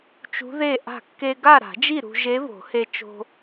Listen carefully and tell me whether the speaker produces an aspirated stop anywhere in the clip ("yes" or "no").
no